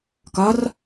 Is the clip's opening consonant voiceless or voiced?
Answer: voiceless